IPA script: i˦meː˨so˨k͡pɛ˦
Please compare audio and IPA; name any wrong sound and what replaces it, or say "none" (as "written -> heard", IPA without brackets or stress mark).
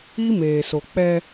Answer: none